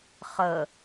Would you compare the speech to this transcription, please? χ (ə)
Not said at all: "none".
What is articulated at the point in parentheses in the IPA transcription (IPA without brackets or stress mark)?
ə